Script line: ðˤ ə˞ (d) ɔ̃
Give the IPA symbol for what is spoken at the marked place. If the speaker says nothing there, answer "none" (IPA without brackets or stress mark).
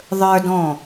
d